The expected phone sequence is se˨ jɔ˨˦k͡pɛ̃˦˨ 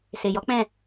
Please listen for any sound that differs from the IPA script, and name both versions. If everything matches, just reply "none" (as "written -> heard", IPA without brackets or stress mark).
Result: none